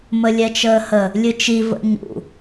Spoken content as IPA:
m ə lʲ ɛ t͡ʃ əː h ə | lʲ ɨ t͡ʃ i v ə̰ ɲ ṵ

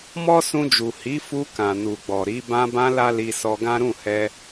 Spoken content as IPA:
m ɔ˦ s ũ˧ d͡ʒ u˨ h i˨˦ f u˧ k ã˨ n u˨ ɡ͡b ɔ˨ ɾ i˨˦ b ã˧ b ã˧ l a˦ l i˧ s ɔ˧ ɡ ã˦ ɾ ũ˦˨ h ɛ˧

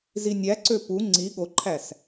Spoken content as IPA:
z i nʲ æ ǀ ø p u ŋ͡ǀ i ɠ o ǃʰ æ s

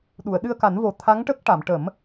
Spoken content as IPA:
ɗ u˨˩˨ ə̯ ɗ ɨ˧ ə̯ k a˨˩˦ n v o˨˩ t̪ʰ a˧˥ ŋ ʈ ə˦˥ k̚ ʈ a˨˩˨ m ʈ ə˨˩˦ m

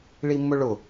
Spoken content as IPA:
ɭ i mː ʊ ɭ ʊ

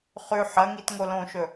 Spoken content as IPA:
χ ʉ ħ ɐ ŋ i t ŋ o l õ ʃ ɵ

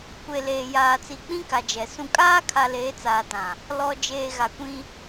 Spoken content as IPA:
kʷ e˨ l eː˨ j aː˨ t͡s i˨ k͡p ĩ˦ k a˨ d͡ʒ ɛ˨ s ũ˨ kʼ aː˦ kʰ a˨ l eː˨˦ t͡s aː˨ t ã˨ | l ɔ˨ d͡ʒ eː˨ ɣ a˨ kʷ ĩ˦

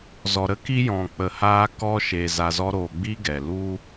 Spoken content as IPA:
z ɔ˨ ɾ ə˦ k i˧ j ɔ̃˨ k͡p ə˨ h aː˧ k ɔ˧ ʃ e˨ z a˧ z ɔ˦ ɾ oː˧ ɡ͡b i˦ ɡ ɛ˨ l u˦

